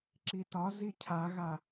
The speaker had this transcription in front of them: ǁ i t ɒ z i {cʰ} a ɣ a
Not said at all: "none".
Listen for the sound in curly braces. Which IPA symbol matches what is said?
cʰ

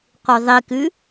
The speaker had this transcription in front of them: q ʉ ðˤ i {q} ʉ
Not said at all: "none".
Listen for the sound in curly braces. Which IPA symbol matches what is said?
k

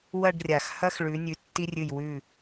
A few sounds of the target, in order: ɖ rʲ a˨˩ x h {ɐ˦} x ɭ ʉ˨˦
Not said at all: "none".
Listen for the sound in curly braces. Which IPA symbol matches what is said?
ɐ˦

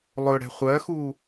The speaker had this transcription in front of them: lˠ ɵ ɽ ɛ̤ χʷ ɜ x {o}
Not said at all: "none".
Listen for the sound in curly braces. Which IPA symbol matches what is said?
u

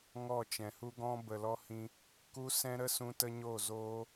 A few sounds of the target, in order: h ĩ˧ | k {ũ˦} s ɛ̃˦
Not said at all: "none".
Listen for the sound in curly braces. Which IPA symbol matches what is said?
u˦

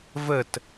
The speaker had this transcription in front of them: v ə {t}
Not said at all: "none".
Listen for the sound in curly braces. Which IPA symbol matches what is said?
t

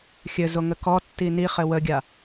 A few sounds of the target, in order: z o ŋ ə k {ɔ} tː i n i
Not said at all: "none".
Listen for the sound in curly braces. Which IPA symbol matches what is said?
ɔ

